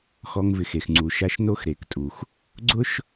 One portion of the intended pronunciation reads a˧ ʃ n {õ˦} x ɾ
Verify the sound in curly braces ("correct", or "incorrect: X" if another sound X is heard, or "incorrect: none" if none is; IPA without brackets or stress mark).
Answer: incorrect: o˦